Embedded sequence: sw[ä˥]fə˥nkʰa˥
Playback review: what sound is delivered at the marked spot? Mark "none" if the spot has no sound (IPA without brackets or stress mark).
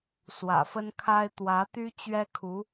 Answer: ä̰˨˩